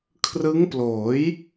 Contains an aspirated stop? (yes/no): yes